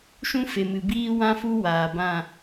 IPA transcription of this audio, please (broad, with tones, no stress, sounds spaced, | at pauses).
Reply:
ʃ ũ˦ f e˨ m ɨ˨ b iː˦ w ã˦ f u˦ w aː˨ b ã˦˨